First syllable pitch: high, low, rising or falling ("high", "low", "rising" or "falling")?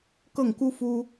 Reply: falling